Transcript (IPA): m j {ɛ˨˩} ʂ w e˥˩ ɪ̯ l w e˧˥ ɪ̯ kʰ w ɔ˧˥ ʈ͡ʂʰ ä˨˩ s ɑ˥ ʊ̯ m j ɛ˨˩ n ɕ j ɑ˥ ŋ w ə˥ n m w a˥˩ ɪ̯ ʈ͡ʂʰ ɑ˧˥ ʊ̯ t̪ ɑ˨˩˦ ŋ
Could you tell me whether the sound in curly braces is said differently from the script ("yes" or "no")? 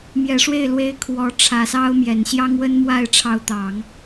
no